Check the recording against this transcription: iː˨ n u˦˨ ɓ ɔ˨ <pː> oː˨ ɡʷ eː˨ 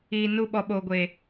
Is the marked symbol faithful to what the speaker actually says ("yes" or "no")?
no